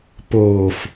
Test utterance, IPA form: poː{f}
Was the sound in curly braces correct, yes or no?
yes